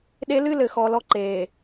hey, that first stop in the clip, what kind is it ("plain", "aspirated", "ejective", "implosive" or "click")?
implosive